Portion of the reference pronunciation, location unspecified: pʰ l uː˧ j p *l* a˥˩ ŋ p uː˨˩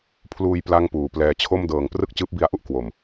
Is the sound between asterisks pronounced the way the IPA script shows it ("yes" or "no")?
yes